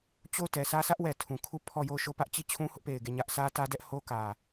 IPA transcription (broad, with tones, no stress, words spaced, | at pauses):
t͡ɕo˦˨ʊ̯tɛ˨sʰä˦ sä˦ʔwɛ˨ tʰũ˨kʰu˦˨pʰɔ˦˨jo˦˨ʊ̯ ʃo˦˨pä˦ʔ t͡ɕi˦˨t͡ɕʰũ˦hʊ˦ʔpe˨ɪ̯ ɡe˦˨ɲä˦ʔ sä˦tä˦dɛ˦ʔ ho˦kä˨